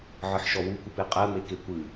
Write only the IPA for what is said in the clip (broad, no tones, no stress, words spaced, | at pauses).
ʕɨħʃɔwukʷɨp eqʼɜme kekʷɨ